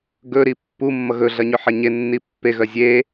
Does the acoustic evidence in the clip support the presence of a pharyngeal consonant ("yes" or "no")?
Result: yes